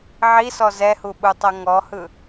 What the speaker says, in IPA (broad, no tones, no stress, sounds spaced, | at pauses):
ʕ i s ɔ z ɛ h u ɓ u tˤ ɤ ŋ ɔ h ɯ